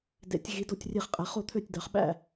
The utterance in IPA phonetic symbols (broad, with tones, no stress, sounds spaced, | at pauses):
d ḛ˩˧ tʲ ɣ i˩˧ d o˧˩ tʲ rʲ e˧˩ χ qʼ æ˩˧ χ o˥˩ t̪ʰ ø˥˩ tʲ d ɑ˩˧ χ ɓ æ̰˥˩